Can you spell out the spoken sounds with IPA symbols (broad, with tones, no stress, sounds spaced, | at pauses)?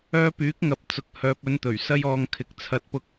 œː˧ p yː˨˥ k̚ ŋ ɐ˨˥ p̚ t͡s ʊ˧ k̚ h œː˨ p̚ ɵ˨˧ n t̪ ɵ˨˩ ɥ s ɐ˧ j ɔː˨ ŋ kʰ ɪ˨ k̚ t͡sʰ ɐ˨˥ t̚ p ʊ˧ k̚